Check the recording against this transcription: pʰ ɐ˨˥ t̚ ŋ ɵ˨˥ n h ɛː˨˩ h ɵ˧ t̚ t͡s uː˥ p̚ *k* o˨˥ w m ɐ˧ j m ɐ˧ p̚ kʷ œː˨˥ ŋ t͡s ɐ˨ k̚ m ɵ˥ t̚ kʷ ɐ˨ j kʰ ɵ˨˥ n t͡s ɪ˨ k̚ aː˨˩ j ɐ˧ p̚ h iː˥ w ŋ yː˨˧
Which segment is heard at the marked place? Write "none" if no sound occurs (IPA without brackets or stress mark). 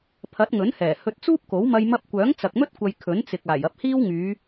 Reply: k